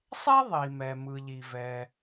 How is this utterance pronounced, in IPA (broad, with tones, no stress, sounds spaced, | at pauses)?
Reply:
sˤ ɛ˥ ðˤ i˩ m ɛ˩ m ɯ˩ ʎ i˩ v ɛ˩